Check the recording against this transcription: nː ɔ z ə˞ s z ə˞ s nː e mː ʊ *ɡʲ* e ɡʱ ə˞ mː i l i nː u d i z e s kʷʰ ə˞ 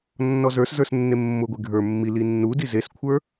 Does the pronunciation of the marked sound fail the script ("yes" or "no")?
yes